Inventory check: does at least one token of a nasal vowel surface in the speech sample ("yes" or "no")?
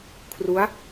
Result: no